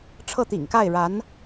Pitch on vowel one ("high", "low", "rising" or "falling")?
falling